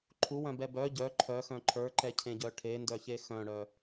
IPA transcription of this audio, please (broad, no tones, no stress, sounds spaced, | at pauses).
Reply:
ǃʰ u w œ̃ b ɛ b œ ɟ œ ǃʰ œ x œ̃ ǃʰ ə˞ ǃ ɛ cʰ ẽ ɟ œ ʈʰ e n d œ ç e x œ̃ ɽ œ